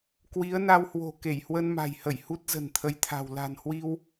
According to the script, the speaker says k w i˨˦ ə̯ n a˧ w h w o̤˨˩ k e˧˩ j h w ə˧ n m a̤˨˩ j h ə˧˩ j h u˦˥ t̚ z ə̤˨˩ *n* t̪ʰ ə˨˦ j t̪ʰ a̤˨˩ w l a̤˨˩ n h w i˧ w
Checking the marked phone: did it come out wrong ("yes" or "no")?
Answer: no